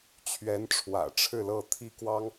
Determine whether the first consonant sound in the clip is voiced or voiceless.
voiceless